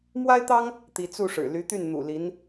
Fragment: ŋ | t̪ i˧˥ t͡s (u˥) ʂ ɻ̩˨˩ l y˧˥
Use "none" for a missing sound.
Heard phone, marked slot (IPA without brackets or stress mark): u˥˩